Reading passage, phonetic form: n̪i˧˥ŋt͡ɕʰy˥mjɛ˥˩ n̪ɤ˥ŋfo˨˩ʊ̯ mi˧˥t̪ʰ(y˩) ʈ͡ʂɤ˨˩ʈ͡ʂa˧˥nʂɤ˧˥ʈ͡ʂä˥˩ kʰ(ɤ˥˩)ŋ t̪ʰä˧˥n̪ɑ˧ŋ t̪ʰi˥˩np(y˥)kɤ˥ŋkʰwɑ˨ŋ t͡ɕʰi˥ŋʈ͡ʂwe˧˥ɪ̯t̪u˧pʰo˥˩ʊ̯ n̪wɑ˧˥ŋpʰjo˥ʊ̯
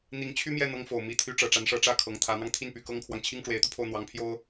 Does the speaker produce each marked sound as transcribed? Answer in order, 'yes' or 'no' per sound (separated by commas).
no, no, no